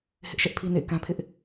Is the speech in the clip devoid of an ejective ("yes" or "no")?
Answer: yes